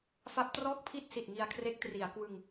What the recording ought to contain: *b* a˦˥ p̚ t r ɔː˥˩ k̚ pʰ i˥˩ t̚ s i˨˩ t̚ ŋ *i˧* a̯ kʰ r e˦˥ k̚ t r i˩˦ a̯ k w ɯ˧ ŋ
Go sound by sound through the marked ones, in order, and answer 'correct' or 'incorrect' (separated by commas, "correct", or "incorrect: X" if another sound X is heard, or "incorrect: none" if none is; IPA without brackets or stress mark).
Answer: incorrect: f, correct